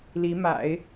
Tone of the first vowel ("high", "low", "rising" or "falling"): rising